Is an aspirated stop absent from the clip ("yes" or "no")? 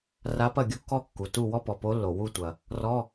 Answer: yes